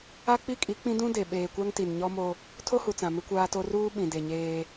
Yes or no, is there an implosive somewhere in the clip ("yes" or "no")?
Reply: yes